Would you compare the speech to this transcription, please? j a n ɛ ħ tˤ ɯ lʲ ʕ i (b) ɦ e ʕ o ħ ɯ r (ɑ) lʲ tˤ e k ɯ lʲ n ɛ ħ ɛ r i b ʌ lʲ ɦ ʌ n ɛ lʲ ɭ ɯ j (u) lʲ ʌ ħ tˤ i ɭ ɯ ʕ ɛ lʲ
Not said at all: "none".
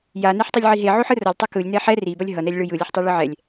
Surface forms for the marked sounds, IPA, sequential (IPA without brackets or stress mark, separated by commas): none, ʌ, ɯ